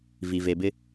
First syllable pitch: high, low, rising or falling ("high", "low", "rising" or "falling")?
low